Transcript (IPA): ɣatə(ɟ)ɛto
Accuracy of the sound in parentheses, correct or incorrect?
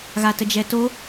incorrect